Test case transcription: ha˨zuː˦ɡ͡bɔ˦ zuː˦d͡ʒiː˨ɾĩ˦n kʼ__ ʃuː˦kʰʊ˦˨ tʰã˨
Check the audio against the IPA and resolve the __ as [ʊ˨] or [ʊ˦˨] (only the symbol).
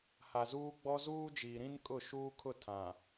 ʊ˦˨